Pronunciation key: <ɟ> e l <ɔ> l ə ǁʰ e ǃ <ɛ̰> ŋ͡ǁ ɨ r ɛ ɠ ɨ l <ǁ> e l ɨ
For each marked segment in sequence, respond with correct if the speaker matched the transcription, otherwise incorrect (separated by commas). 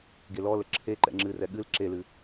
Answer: incorrect, correct, correct, correct